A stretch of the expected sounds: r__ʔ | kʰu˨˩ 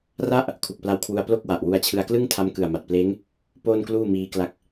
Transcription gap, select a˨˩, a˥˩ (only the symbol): a˥˩